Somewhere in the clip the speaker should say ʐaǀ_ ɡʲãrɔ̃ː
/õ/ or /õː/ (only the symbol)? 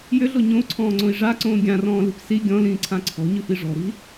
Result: õː